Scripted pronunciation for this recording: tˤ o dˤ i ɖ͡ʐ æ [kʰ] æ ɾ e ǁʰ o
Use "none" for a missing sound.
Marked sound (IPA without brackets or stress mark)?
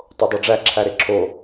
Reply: ǁʰ